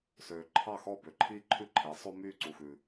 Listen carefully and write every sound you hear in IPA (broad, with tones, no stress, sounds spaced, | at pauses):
s øː˩ ǃʰ ɑ˥˩ x ɔː˥˩ b ø˩ ǃʰ iː˥ ǃʰ ʉ˥ ǃʰ e˩˥ sˤ o˥ m yː˥˩ ǀ u˩ x ʉ˩